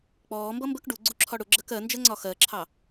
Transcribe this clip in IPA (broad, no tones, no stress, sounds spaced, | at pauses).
k͡p ɔː m b ʌ m b ə k ɖ u ɡ͡ǀ u ǁʰ ɒ ɽ ʊ ɡ͡ǁ ɜ k ɜ n d͡ʒ ɜ ŋ͡ǀ ɒ x ɜ ǁʰ ɑ